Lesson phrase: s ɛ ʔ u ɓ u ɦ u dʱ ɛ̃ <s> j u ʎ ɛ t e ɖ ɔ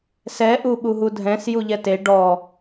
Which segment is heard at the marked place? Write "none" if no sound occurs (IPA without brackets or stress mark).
s